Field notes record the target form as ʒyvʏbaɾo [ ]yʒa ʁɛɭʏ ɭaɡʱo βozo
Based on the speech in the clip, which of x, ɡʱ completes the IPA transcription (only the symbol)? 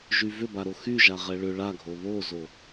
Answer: x